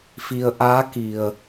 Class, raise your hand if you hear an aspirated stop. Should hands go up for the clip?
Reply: no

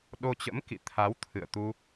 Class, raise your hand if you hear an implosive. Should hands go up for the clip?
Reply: yes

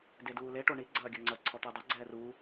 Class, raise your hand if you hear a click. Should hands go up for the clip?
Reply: yes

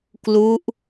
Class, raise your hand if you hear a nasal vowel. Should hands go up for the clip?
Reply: no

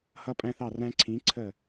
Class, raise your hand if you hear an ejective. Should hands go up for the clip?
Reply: yes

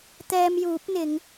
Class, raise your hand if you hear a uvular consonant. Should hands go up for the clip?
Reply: no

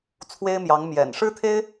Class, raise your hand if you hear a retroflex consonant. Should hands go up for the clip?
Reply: yes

